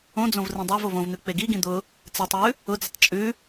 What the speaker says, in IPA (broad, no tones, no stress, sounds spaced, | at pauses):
õ d͡z õ v r ĩ dˤ ɜ v o v õ v n̪ ʉ k͡p e ɡ i ɡ ĩ d̪ ʊ | t͡s e tˤ w ʉ | ʊ d͡z ʊ tˤ t͡ʃʼ ʉ